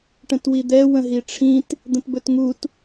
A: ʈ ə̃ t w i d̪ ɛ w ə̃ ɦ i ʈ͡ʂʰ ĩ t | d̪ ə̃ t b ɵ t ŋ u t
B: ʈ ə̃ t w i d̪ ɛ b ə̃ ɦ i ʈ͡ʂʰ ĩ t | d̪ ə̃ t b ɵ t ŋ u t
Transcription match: A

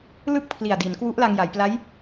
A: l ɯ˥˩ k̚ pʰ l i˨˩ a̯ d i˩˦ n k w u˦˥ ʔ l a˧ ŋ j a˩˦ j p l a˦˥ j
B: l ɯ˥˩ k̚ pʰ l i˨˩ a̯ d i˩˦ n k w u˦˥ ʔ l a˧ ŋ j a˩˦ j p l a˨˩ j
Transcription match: A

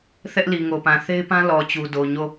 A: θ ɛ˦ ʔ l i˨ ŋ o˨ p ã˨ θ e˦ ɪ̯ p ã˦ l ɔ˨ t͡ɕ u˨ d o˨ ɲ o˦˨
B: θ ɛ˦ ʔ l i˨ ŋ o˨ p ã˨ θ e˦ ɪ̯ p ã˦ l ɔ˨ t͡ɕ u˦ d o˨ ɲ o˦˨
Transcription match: A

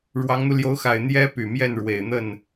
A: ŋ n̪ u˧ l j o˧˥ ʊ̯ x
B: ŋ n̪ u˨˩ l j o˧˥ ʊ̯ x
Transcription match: A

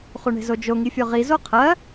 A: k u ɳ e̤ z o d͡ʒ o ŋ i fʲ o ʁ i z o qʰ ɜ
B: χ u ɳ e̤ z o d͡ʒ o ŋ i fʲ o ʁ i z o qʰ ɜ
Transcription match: B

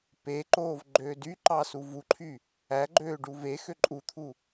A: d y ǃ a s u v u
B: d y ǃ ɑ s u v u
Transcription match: B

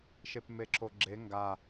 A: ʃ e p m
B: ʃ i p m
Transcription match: A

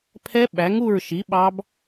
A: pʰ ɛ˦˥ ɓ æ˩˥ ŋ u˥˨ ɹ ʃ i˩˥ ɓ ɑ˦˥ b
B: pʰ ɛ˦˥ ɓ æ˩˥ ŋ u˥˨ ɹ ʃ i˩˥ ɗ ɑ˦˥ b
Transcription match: A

